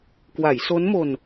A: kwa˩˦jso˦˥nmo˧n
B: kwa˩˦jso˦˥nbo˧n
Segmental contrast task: A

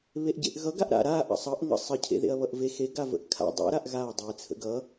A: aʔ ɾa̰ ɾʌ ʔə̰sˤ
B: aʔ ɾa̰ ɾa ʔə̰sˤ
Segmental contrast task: B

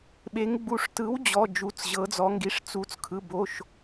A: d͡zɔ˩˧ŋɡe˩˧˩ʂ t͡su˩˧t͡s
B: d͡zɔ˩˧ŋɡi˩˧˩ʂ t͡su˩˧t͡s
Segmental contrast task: B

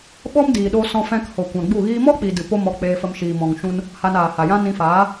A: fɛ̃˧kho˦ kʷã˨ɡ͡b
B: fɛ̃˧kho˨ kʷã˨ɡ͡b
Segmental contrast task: B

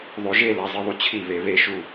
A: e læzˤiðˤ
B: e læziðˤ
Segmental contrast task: A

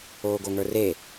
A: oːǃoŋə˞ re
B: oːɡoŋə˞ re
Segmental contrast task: B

